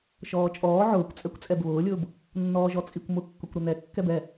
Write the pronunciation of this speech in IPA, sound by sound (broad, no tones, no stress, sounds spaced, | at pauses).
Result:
ʃ ɔː t͡ʃʼ ɔː ʕ ʊː kʷ t͡sʼ ɛ kʷ t͡sʼ ɛ b β ʊː lʲ ʊː b | nː ɔː ʒ ɔ t͡sʼ i kʷ m ʊ kː ʊ kʷ ɾ ʊ n ɛ kː ɛ b ɛ